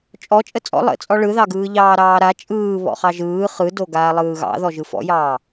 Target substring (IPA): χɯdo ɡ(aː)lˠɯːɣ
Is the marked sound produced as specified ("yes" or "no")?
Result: yes